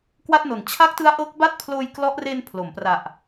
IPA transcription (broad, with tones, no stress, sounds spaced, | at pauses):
k w a˥˩ t̚ n o˨˩ n t͡ɕʰ a˦˥ k̚ t ɯ˦˥ a̯ ʔ ɤː˦˥ k̚ b a˥˩ t̚ pʰ l oː˧ j k l ɔ˦˥ ʔ r e˧ n pʰ l o˩˦ m p r a˨˩ ʔ